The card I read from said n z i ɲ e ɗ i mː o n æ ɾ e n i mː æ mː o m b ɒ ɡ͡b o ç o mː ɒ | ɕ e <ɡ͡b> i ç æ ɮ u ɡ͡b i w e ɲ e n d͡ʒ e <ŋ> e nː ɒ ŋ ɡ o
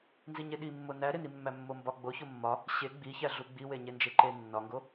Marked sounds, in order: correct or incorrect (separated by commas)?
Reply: correct, incorrect